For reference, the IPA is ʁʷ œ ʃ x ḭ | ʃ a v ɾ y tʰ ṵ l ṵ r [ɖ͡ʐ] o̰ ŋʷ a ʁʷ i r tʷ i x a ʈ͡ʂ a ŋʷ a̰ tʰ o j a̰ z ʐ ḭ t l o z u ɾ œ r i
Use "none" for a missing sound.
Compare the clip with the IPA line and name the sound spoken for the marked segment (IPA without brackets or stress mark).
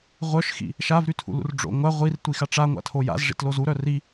ɖ͡ʐ